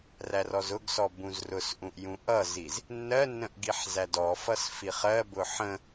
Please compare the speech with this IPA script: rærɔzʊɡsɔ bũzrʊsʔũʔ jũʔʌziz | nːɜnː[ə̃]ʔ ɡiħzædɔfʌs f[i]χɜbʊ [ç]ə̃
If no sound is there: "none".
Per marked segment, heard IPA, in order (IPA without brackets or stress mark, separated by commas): ə̃, i, ħ